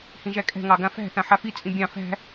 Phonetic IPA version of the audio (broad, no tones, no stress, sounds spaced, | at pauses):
h ĩ ʒ æ kʼ ɛ̤ ŋ ɑ ɡ ã f æ̤ θ ã ħ a f i t͡sʼ ĩ bʲ ɑ̃ f æ̤